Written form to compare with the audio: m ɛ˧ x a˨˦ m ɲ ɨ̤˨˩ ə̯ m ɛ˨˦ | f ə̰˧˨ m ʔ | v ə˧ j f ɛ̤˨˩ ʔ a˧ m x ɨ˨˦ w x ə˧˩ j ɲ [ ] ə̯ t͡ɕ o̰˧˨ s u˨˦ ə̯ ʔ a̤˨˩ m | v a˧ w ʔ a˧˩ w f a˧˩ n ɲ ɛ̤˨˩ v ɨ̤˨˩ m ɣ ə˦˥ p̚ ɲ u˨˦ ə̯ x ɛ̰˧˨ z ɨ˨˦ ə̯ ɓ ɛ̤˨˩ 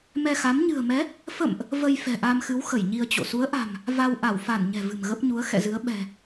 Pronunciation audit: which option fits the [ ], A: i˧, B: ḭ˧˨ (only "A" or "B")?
A